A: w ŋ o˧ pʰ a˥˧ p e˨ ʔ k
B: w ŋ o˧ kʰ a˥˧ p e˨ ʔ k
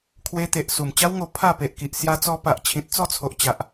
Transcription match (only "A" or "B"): A